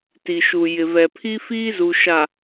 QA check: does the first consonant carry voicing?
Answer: no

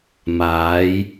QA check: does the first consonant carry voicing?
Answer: yes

